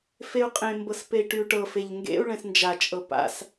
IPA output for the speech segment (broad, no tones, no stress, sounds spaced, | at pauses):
f e u̯ qʼ ẽ m b ɤ s p e i̯ ʈ y u̯ ʈ ɤ f e ʎ ŋ ɡ ḛ u̯ ɭ ɛ̃ s n d͡ʒ a t͡ʃʼ ɤ p a̰ s